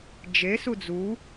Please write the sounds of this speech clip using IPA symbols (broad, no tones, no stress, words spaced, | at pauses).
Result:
d͡ʒesu d͡zu